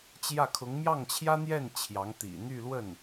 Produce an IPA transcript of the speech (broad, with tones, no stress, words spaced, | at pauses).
t͡ɕjä˥˩kʰʊ˧˥ŋ mjɑ˥˩ŋt͡ɕʰjä˥n̪jɛ˥˩n t͡ɕʰjɑ˧˥ŋt̪ḭ˨˩ n̪y˥˧ lwə˥˩n